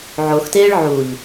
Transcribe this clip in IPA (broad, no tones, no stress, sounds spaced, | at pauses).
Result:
ʕ o x t eː ɭ ʕ u ʎ